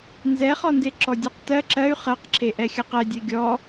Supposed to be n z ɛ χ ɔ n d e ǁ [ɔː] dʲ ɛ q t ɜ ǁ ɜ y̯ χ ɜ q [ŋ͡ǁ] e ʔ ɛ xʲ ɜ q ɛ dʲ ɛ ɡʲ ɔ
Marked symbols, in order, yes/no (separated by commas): no, no